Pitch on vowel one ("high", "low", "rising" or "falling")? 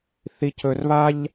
low